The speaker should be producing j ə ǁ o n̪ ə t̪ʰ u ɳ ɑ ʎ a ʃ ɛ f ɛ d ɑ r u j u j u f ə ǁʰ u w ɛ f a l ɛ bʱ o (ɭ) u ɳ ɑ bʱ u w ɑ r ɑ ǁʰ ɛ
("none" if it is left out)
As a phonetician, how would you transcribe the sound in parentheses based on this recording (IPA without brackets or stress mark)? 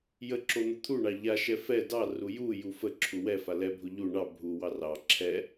ʎ